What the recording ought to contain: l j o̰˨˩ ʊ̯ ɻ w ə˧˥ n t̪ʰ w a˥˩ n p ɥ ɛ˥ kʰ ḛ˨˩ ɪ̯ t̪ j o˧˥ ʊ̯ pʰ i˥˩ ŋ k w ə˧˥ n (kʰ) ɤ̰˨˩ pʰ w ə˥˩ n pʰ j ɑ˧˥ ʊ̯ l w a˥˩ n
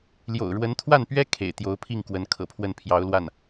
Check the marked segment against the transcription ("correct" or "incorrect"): correct